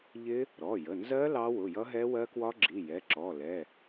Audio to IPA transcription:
ʎɪ˦˥ | ɾɔ˩˧˩jə˩˧˩nzɜ˦˥ lɑ˦˥wʊ˩˧˩ jʌ˦˥ɦɛ˦˥wɜ˦˥kwɒ˦˥ ɡ͡ǁi˩˧˩jɛ˩˧˩ǁɔ˩˧˩lɛ˩˧˩

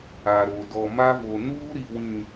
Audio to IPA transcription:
a˨ɾo˨ dɔ˨ma˦vo˨ nuː˦ɾi˨wĩ˨

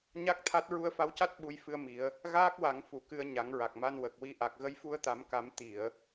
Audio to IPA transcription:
ɲa˦˥k̚t̪ʰa˦˥t̚ ɹu˧ə̯fa˧˥wca˦˥t̚ ɓu˧jfɨ˧ə̯mi˨˩˦ə̯ | ɣaː˦˥k̚wa˨˩˦ŋ fu˨˩˨kɨ˨˩ə̯ ɲa˨˩˦ŋɹa˨˩k̚ma˧n wə˨˩k̚wi˧ʔa˨˩k̚ ɣə˧jfu˧ə̯t̪a˨˩˦mka˨˩˦m t̪i˨˩˨ə̯

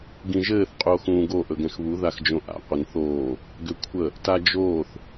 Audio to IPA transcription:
ɡĩʒɘːθ qʼuo̯xũːɡo ʔɵɡɛ̃xβu ðaxd͡ʒõʔa̰ qʷənθoː | ɡʏkʷʰə | tad͡ʒoːθ

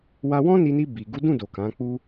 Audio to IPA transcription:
wa˧wɔ̃˦ni˧ni˧ bi˨ ɡu˨˦dũ˦˨do˨ kã˨˦k͡pu˦

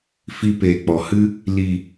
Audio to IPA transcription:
fi˧peː˨k͡pɔ˨hɨ˦ | li˨

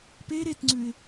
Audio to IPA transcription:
pe ɾetŋ͡ǀʉɪ̯

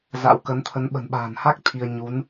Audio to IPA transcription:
za̰˧˥wkə˨˦nt̪ʰə˨˦n ɓə̤˨˩nɓa̤ː˨˩nha˦˥k̚ t̪ʰi˧ə̯ ɲu˨˦n

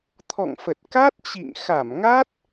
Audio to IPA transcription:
t̪ʰɔ̰˧˨ŋfə˨˩t̚ ka˦˥t̚t͡ɕḭ˧˨ŋ xa˧˩mŋa˦˥t̚

